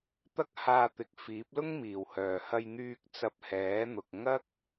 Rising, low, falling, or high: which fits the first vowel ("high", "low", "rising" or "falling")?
high